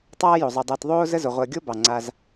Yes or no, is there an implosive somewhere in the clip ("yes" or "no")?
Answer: no